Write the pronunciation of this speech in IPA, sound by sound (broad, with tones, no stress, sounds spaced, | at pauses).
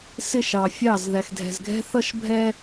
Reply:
s ɪ˦˨ ʃ ɑ˨ fʲ ɑ˦˨ z ð æ˨ x dʱ ɛ̤˨ z ɡʱ ɛ̤˦ θ ʌ˦ ʃ bʱ ɛ˦